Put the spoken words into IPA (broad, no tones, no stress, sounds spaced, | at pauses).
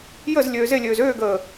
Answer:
j ə z lʲ øː z e lʲ øː z øː ɡ əː